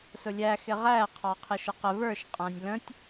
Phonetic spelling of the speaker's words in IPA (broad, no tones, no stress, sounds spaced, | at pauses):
s ʊ lʲ æ x ɪ ʁ æ qʰ ɑ qʰ ɪ ʃ ə q ə v ə˞ ʃ qʼ æ̃ nʲ l ə̃ tʲ